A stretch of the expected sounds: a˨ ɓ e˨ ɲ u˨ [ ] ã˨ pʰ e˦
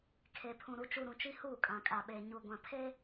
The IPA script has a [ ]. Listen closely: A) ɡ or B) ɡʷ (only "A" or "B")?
B